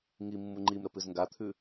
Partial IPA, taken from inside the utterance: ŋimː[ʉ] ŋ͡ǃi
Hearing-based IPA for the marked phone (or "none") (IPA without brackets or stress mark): u